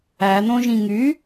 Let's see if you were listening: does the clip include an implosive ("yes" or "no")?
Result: no